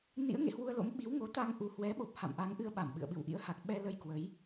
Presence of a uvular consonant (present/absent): absent